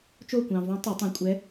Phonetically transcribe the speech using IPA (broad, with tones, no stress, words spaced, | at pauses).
t͡ʃo˥˨kʷɑ̃˨ võ˧˥tˤo˨˩˦tˤõ˨ kʷʼɛ˧˥